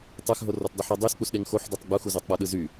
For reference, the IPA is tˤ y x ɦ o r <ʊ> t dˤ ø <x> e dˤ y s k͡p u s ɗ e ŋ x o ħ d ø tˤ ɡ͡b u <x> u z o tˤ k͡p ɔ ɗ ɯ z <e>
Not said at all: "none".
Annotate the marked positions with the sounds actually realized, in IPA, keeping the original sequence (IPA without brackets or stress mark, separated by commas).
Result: ɔ, ħ, x, y